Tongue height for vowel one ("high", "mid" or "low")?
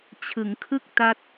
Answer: high